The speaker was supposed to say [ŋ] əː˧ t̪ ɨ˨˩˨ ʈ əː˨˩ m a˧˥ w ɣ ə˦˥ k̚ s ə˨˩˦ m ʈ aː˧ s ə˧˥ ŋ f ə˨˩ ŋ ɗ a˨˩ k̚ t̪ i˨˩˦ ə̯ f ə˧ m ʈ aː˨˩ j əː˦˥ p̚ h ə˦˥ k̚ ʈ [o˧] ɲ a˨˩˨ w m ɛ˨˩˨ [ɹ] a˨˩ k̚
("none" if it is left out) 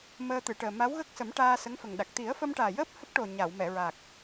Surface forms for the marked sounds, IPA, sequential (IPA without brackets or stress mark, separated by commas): m, o˨˩, ɹ